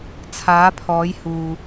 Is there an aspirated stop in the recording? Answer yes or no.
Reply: yes